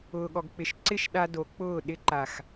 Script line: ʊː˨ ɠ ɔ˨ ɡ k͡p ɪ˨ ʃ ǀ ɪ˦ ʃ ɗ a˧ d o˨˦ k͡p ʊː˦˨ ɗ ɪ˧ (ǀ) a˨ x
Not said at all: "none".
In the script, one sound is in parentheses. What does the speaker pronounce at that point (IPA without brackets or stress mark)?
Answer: ǃ